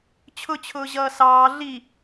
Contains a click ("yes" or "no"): no